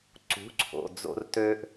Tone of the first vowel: rising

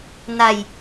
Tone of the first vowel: falling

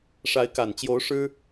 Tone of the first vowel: rising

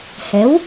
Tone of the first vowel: rising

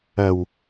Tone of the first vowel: low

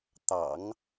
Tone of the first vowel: low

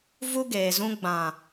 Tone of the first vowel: high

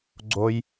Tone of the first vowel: high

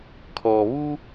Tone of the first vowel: low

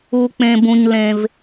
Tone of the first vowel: low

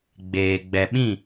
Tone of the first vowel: low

